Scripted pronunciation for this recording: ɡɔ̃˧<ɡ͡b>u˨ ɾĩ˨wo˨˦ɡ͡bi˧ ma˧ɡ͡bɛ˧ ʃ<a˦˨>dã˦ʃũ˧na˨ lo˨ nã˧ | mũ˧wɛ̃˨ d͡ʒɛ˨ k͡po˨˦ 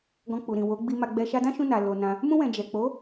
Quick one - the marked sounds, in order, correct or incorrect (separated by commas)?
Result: incorrect, incorrect